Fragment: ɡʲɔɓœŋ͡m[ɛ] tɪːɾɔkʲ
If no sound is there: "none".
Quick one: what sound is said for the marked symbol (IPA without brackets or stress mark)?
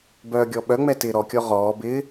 ɛ